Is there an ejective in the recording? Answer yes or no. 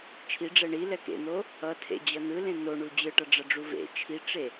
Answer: no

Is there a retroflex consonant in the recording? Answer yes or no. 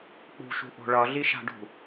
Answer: yes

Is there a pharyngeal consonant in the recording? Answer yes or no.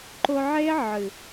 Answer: yes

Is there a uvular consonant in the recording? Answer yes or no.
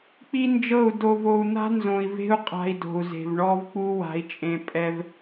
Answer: yes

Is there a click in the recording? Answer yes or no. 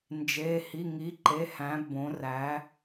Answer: yes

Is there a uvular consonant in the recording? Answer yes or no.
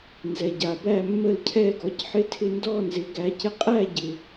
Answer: yes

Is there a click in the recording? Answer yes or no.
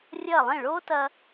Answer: no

